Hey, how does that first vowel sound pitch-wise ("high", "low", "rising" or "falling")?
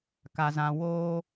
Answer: low